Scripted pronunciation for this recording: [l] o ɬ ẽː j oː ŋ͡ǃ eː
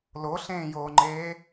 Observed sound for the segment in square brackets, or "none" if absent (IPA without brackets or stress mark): l